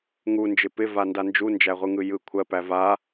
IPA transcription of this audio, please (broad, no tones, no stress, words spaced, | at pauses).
ŋund͡ʒɪ pɪvanda nd͡ʒund͡ʒæʁʷɯŋɯ jɯ kʷʰɜpæ va